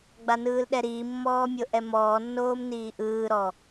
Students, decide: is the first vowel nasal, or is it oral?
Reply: oral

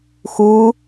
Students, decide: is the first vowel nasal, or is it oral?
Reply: oral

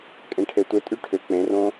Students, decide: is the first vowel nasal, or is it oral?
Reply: nasal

